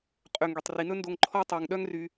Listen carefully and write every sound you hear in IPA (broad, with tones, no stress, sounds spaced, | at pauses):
qʼ ø˧ ŋ ɡ y˨ tˤ r i˨ n ɵ˦ n d o˧ ŋ ǃʰ ɔ˦ tˤ æ˧ ŋ ɗ œ˦ ŋ r y˧